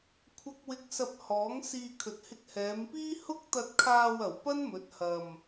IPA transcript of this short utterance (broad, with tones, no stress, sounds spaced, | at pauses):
kʷʰ ɐ˨ k̚ w ɪ˨ k̚ s ɐ˧ p̚ h ɔː˨˥ ŋ s iː˧ kʰ ɵ˨ t̚ h ɪ˧ k̚ h ɛː˨˧ m p iː˥ h ʊ˥ k̚ t̪ ɐ˧ t̚ kʰ aː˧ w ɐ˨˩ w p ɐ˥ n m ɵ˨˥ t̚ h ɐ˧ m